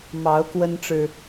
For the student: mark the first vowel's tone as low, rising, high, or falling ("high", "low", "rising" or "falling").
rising